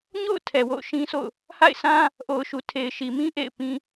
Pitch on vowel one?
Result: falling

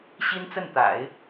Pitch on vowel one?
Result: high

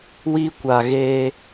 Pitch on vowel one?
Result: high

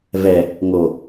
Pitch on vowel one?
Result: low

